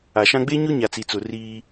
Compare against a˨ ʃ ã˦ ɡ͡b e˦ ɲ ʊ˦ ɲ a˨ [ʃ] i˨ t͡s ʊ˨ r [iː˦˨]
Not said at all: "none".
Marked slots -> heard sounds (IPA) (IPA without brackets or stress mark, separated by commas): t͡s, iː˦